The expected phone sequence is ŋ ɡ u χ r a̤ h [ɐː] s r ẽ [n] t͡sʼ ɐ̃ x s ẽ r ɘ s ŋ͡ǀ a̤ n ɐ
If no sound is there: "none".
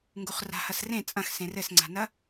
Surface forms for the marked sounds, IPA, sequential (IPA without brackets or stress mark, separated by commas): ɐ, none